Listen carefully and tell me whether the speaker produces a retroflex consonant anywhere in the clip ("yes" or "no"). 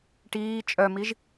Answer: yes